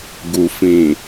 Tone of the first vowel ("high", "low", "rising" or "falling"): low